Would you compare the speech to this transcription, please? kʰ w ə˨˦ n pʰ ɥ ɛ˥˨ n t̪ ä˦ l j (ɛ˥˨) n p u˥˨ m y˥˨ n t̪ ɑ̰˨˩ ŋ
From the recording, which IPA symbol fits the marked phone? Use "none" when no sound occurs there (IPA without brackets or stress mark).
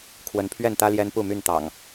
ɛ˦